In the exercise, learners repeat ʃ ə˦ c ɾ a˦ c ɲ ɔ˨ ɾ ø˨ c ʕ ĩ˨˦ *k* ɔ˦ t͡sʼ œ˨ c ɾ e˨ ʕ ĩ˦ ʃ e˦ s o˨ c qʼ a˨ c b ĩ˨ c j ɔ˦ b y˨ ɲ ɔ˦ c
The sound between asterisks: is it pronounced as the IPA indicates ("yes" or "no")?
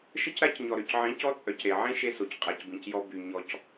no